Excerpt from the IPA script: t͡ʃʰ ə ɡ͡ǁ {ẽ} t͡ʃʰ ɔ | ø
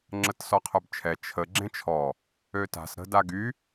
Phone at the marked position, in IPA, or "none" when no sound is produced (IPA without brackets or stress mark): ẽ